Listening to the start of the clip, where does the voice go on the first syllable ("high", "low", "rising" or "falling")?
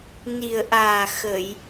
low